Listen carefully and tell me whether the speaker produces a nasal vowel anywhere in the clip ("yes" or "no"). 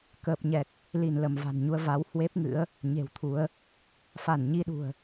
no